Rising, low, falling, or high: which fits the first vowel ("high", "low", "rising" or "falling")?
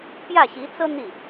falling